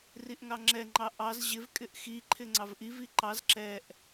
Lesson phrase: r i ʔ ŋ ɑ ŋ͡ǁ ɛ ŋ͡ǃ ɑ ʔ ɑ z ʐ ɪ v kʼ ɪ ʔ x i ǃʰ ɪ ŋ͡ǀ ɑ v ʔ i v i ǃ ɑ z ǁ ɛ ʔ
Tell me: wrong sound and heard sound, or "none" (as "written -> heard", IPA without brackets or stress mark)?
ʐ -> ʑ